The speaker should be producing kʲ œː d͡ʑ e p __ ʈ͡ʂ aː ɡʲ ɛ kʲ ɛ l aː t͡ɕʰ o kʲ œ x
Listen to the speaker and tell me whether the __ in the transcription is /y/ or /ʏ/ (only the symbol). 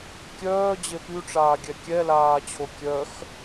y